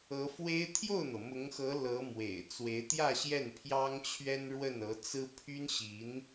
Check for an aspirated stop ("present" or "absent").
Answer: present